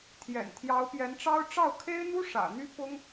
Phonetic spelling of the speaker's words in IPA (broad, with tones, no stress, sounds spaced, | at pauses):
t̪ʰ j ɛ̰˨˩ n t̪ʰ j ɑ˧˥ ʊ̯ p j ɛ˧˥ n ʈ͡ʂ ɑ˥ ʊ̯ ʈ͡ʂ ɑ˥˩ ʊ̯ kʰ e˥ ɪ̯ n̪ u˥ ʂ ä̰˨˩ n̪ y˥ p ʊ˥ ŋ